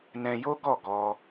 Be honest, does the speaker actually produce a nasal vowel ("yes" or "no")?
yes